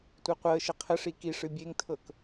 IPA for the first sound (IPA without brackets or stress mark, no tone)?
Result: tʷ